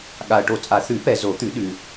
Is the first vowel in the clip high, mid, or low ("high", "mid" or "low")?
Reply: low